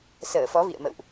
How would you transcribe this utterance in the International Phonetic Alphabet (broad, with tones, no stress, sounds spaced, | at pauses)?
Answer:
s əː˧˩ f ɔ˨˦ v ḭ˧˨ ə̯ m ə̰˧˨ w ʔ